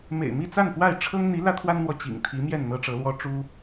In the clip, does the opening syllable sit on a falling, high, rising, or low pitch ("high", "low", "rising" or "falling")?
low